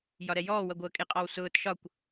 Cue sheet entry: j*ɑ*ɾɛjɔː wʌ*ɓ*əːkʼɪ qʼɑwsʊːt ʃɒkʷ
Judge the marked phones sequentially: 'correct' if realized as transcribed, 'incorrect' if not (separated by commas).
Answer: incorrect, incorrect